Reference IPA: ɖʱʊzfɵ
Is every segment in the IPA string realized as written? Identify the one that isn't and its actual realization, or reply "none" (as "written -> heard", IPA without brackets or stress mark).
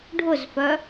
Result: ɵ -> œ